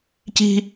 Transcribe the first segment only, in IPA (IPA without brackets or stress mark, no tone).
c